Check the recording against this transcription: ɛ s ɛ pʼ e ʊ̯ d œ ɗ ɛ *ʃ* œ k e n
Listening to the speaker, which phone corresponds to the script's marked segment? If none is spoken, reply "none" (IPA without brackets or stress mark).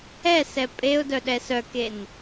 s